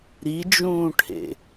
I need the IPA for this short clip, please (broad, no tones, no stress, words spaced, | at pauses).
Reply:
ɾid͡ʒũːʈʰḛ